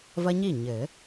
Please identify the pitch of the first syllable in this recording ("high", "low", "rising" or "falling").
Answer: high